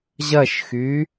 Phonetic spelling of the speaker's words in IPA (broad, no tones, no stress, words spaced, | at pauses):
ʑɐʃxy